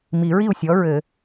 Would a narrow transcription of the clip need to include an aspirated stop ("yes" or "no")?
no